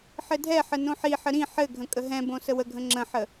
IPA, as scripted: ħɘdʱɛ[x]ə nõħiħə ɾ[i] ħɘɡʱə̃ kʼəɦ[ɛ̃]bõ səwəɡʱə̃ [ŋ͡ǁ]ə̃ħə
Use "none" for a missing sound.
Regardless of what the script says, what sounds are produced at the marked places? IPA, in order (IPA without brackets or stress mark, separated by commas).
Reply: ħ, ĩ, ɛ̃, ŋ͡ǁ